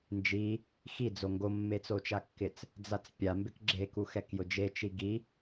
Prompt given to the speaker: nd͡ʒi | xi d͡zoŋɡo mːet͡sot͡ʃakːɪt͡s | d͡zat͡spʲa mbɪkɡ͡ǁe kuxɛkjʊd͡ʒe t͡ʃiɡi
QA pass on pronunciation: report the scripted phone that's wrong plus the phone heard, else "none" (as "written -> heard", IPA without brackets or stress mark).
none